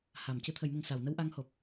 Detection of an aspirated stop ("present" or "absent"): present